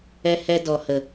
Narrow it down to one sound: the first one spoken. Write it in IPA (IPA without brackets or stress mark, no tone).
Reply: ɛ